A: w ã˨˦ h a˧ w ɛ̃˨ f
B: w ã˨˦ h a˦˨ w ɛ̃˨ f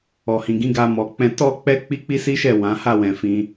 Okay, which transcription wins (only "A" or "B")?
B